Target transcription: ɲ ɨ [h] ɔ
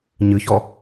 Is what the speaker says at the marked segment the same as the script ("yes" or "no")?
no